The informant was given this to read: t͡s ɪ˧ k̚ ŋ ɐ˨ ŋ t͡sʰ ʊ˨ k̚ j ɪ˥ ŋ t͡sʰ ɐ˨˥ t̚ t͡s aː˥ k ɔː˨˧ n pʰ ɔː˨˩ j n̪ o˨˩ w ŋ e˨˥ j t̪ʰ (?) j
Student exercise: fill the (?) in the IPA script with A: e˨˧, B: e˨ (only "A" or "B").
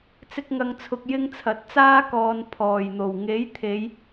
A